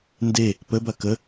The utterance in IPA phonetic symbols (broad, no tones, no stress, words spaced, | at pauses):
nde | pəbɐ kə